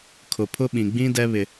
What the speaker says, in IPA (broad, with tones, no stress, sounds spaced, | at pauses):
kʰ ʊ˨ pʰ ʊ˦ ɓ ĩ˨ ɡ͡b ĩ˦ d ɛ˦ β ɪ˦